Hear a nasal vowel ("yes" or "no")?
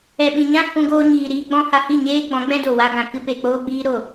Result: yes